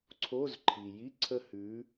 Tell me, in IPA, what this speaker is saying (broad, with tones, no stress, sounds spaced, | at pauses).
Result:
ǀʰ o˧˥˧ z ǃʰ i˩ j i˧˥˧ ǀʰ ə˦˨ h ʉ˨˥